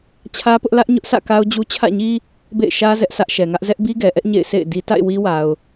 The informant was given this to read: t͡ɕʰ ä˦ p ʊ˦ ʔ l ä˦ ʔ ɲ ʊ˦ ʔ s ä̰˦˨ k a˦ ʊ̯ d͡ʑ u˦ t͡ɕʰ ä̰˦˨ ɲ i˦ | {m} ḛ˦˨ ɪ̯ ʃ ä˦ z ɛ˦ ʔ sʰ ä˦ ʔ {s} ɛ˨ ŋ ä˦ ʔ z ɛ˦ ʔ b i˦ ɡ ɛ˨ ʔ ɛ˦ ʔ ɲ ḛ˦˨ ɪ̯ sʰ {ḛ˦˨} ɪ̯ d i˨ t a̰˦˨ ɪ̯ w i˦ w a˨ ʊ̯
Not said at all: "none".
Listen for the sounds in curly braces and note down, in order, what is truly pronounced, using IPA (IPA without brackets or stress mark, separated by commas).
b, ʃ, ḛ˦˨